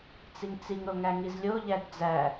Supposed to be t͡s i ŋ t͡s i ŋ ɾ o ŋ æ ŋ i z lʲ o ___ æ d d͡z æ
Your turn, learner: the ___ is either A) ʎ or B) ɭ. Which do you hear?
A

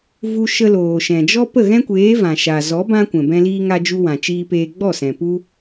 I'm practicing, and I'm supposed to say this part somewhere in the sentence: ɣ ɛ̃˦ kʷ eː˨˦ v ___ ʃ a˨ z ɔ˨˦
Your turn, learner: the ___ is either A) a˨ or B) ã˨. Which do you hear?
B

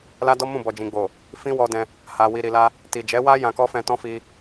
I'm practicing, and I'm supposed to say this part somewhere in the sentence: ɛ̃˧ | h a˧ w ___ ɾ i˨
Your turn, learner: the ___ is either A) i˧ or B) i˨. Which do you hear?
A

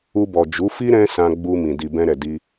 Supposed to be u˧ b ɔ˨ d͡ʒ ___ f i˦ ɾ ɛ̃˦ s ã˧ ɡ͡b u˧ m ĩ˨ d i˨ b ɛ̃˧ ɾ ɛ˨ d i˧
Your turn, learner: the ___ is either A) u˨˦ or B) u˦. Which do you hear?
A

